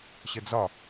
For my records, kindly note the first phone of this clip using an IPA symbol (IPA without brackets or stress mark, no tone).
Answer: ɕ